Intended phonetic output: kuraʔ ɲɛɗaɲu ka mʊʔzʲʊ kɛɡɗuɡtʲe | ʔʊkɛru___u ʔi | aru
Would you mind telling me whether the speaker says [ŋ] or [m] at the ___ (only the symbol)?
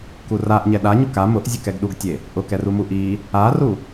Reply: m